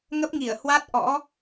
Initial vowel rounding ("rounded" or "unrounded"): unrounded